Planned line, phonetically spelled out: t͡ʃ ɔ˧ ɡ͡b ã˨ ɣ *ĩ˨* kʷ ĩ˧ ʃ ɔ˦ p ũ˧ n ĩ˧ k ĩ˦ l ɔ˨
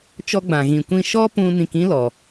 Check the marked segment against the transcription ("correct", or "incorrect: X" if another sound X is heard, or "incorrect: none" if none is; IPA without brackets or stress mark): correct